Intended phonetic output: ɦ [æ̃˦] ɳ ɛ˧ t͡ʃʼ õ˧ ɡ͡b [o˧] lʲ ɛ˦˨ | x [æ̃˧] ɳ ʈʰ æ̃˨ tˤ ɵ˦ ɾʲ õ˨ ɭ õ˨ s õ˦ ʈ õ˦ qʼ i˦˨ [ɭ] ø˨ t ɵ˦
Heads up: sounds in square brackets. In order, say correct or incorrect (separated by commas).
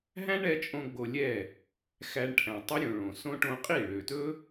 correct, correct, incorrect, correct